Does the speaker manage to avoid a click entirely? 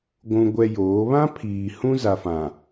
yes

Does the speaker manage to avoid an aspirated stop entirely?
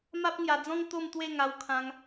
no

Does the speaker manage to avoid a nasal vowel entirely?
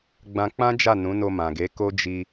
no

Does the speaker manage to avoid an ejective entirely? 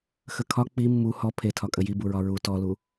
no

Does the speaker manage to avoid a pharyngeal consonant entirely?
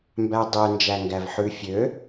no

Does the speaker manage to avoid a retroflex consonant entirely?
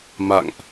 yes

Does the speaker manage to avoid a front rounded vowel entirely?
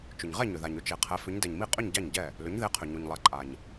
no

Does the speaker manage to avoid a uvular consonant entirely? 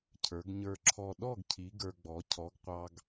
no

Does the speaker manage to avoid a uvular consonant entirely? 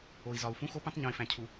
yes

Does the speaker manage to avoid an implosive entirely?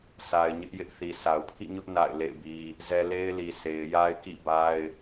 yes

